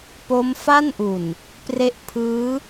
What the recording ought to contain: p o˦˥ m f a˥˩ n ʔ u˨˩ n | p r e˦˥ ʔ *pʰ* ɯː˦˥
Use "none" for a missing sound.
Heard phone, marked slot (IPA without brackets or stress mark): pʰ